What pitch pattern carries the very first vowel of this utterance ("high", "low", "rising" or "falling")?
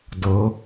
rising